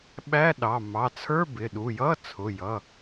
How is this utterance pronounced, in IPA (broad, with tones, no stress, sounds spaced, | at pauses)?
ɓ æ˧˥˧ ɗ ɑ˩˧˩ m ɑ˩˧˩ t͡sʰ ə˞˧˥˧ b ɪ˩˧˩ ɗ u˩˧˩ j ʌ˧˥˧ t͡sʰ ʊ˩˧˩ j ʌ˩˧˩